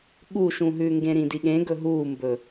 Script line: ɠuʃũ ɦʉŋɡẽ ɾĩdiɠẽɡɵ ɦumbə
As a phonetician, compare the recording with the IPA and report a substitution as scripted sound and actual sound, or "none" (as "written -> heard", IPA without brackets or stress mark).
ə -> ɵ